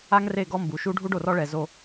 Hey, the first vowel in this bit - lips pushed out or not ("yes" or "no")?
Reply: no